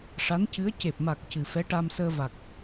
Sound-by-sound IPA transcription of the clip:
ʂ a˧˥ n c ɨ˧˥ ə̯ c e˨˩ p̚ m a˨˩ k̚ c ɨ˨˩ f ɛ˧˥ ʈ a˧ m s əː˧ v a˨˩ k̚

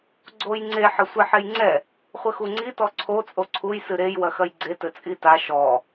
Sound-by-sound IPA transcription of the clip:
ɡ͡ǀ o j ŋ͡ǀ e ħ ɐ sʷ ɛ ħ e j ŋ͡ǀ ɛ | χʷ ɘ x u ŋ͡ǀ i t ɔ ǀʰ o t͡sʼ o ǀʰ u j s ɨ ɾ e j w ɐ x ɐ j ɡ͡ǀ e t ɘ t͡sʼ i t a ʃ ɔ

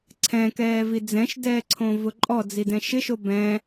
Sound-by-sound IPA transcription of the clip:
ǀʰ ɛ̃ k ɛː v i d͡z ɛ̃ ʃ d ɛː ǀʰ õ v ʊ ǃʼ ɔ d͡z i d ɛ̃ ʃ ɪ ʃ o b ɛ̃

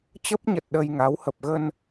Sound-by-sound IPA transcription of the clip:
t͡ɕ ə˦˥ p̚ ɲ ə˨˩ t̚ ɗ ə˧ j ŋ a˨˦ w h ə˨˩ p̚ ɣ ə˧ n

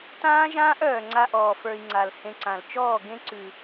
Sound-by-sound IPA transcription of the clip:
t ãː˦ ʒ ãː˦ ʔ œː˨ ŋ͡ǀ a˧ ʔ ɔː˨ f ə˞˧ i̯ ŋ͡ǀ a˨ l h ẽ˧ ǀ ã˨ l t͡ʃ ɔː˦˨ ɡ ẽ˦ ǀ ʉ˨

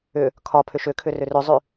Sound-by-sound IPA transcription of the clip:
ʏ | kʰ ɒ pʰ ʏ ʃ ʏ kʰ ʏ r ʏ r ʏ zˤ ʉ

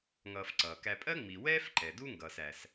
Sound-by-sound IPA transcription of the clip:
ŋ ʌː˨ f ǀ ʌː˩ k æ˨ pʼ ɜ˥ ŋ͡m i˩ w ɛː˥ f ǃ ɛ˩ d u˦ ŋ ɡ ʌː˩ s æ˩ s

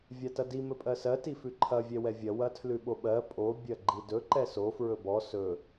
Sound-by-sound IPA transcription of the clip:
vʲ a t ɐ d i m ɵ pʼ ɜ s ɜ t i f ʉ ǃʰ ɐ vʲ ɛ w ɛ vʲ ɐ w ɐ tʰ l ʉ ɓ o ɓ ɜ pʼ o bʲ ɐ ɡ͡ǃ i d ɵ ǃ ɛ s o f ɹ ɵ b ɔ s ɵ

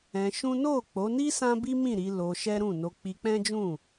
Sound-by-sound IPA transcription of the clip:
ɛ̃˧ ʃ ũ˦ n o˦˨ k͡p o˨˦ n i˦ s ã˦ b i˦ m ĩ˦˨ ɾ i˨˦ l o˧ ʃ ɛ˦ ɾ ũ˦˨ n o˧ k͡p i˧ k͡p ɛ̃˦ d͡ʒ ũ˦˨

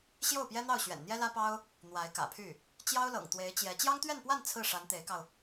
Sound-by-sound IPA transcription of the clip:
ɕ j o˥˩ ʊ̯ p j ɛ˥ n̪ ɑ˥˩ ʊ̯ ɕ ɥ ɛ̰˨˩ n n̪ j ɛ˥ l ä˥ p ɑ˥ ʊ̯ | n̪ w a˧˥ ɪ̯ k ä̰˨˩ pʰ y˥˩ | t͡ɕ j ɑ˥ ʊ̯ l ɤ̰˨˩ ŋ t̪ w e˧˥ ɪ̯ t͡ɕ j ɛ˧˥ t͡ɕ j ɑ˥ ŋ t̪ ɥ ɛ˥˧ n p w a˥˧ n t͡sʰ ɹ̩˥˩ ʂ a˧˥ n t̪ e˧˥ ɪ̯ k ɑ˧ ʊ̯

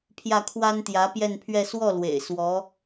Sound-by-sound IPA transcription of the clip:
pʰ j ä˥˩ kʰ w a˥ n t̪ j ä˧˥ p j ɛ˥˧ n pʰ ɥ ɛ˥˧ s w ɔ˥˩ l w ḛ˨˩ ɪ̯ s w ɔ˧˥

